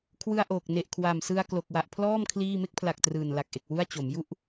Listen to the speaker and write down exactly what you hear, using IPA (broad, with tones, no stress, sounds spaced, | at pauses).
kʰ w ɯ˧ a̯ ʔ oː˨˩ k̚ n e˨˩ ʔ kʰ w a˨˩ m s ɯ˧ a̯ k l o˨˩ k̚ w a˨˩ ʔ pʰ l ɔː˥˩ m kʰ l iː˥˩ m e˥˩ k̚ pʰ l a˨˩ k̚ t r ɯː˨˩ n l a˨˩ k̚ ʔ e˨˩ k̚ w u˥˩ a̯ t͡ɕ o˩˦ m j u˥˩ ʔ